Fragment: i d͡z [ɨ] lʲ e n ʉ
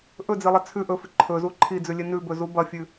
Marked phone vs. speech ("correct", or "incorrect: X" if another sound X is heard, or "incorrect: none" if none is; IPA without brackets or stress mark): incorrect: ʉ